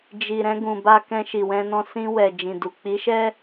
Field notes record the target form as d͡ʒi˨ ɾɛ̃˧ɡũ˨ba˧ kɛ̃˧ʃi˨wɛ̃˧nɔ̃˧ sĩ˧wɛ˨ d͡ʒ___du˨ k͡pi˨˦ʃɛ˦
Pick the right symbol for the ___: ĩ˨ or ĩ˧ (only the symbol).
ĩ˨